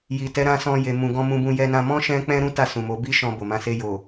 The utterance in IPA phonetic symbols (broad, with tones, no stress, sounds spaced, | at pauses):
j i˨ t ɛ˨˦ ɾ ã˧ s ɔ̃˧ j e˨ m ũ˨ ɡ ɔ̃˧ m ũ˧ b ũ˧ j ɛ˧ n ã˧ m ɔ̃˦ ʃ ɛ̃˦ k͡p ɛ̃˦ ɾ ũ˦ t a˦˨ s ũ˨ m o˨˦ b i˦ ʃ ɔ̃˧ b o˨ m ã˨˦ s e˧ j o˨